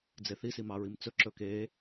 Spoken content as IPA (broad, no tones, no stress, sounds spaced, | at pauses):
d͡z e θ i s i m ɑ ɹ i m t͡s ɵ ǁ ɵ k e